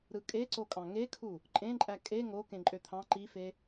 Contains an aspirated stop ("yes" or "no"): yes